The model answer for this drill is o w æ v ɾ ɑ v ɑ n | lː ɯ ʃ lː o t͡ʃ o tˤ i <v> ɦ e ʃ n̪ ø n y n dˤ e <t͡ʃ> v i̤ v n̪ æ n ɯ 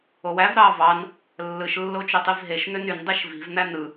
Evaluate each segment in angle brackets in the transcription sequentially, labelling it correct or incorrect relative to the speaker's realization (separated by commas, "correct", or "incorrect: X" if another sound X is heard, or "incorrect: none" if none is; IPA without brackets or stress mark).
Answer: correct, incorrect: ʃ